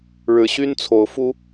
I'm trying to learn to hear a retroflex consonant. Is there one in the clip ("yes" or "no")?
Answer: yes